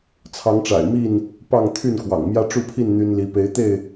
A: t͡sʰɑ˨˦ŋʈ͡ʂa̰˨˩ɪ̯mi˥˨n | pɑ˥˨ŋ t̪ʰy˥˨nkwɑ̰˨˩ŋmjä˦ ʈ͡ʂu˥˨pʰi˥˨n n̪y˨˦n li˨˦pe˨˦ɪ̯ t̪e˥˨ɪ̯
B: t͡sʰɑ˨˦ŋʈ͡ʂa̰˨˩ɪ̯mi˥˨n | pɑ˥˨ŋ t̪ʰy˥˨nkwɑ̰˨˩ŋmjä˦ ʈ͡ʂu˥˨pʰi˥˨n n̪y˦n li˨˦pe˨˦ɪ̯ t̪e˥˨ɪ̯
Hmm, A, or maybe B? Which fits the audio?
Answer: B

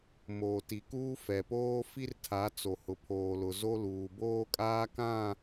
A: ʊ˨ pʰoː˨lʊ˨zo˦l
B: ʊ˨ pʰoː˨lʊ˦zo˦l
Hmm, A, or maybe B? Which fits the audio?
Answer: A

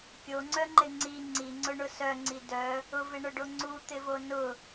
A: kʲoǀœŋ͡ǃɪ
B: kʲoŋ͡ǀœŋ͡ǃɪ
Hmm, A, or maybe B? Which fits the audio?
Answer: B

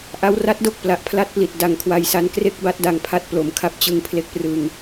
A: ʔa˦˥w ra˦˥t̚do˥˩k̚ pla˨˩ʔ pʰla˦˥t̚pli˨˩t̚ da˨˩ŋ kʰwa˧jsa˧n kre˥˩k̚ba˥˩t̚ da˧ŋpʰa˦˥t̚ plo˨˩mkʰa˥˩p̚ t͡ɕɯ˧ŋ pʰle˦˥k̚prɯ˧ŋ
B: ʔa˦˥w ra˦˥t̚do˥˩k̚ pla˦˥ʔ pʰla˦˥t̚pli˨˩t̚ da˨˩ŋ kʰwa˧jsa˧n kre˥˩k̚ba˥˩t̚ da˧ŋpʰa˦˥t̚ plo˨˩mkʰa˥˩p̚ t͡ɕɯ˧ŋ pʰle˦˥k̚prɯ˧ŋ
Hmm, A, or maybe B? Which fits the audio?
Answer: A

